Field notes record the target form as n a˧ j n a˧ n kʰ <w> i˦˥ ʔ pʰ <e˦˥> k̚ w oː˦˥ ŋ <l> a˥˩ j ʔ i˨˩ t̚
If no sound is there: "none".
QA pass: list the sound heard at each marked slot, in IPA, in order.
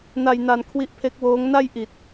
w, e˦˥, n

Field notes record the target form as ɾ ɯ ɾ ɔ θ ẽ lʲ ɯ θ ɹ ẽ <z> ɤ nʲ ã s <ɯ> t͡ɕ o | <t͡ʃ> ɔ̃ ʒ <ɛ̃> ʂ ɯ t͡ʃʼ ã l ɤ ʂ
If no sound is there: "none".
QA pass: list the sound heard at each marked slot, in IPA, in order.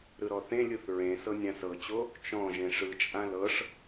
s, ɤ, t͡ʃ, ẽ

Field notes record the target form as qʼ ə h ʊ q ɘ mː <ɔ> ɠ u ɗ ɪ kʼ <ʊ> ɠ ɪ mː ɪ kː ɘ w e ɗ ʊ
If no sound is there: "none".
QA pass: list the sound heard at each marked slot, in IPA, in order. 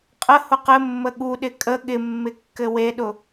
ə, ə

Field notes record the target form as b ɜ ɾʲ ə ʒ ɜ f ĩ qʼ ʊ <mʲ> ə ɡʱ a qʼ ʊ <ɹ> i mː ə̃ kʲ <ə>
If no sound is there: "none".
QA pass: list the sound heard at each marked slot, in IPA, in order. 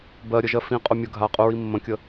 mʲ, ɹ, ə

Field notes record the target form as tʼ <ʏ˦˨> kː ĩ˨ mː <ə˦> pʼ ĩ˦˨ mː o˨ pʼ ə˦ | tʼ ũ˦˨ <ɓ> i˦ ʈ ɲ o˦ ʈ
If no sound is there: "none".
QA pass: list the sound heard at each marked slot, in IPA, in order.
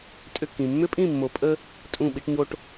ʏ˦˨, ʏ˦, ɓ

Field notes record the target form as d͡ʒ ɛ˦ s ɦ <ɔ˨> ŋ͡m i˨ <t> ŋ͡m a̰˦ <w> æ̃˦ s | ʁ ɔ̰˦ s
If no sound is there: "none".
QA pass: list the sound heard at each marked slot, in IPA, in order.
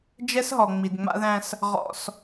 ɔ˨, d, ð

